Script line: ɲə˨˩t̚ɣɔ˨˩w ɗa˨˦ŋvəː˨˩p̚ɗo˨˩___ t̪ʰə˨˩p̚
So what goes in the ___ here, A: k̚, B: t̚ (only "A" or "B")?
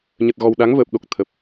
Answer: A